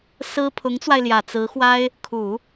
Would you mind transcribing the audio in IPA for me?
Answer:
s ɹ̩˥ pʰ ʊ˧˥ ŋ t͡s w a˧ ɪ̯ l j ä˨˩ t͡s ɹ̩˧˥ x w a˥ ɪ̯ | kʰ u˨˩˦

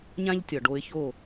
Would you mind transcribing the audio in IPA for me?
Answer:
ɲ ã˥ ʎ tʲ ɒ˩ ɖ o˧ ɪ̯ ç o˥˩

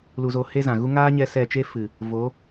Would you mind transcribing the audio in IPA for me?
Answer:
l u˧ z o˧ h e˦ z ã˨ ɣ u˦ ŋ aː˦ ɲ ɛ˧ s ɛ˦˨ t͡ʃ e˦ f ɨ˨ | v o˨˦

